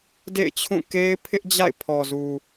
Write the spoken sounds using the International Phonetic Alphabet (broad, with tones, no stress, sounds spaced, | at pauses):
d ḛ˦˨ ɪ̯ t͡ɕʰ ũ˦˨ k e˦ ɪ̯ pʰ ɪ˦ ʔ d͡ʑ a̰˦˨ ɪ̯ pʰ ɔ˨ z u˨